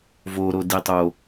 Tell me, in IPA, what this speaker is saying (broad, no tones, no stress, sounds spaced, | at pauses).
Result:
v o ɾ o d i tˤ o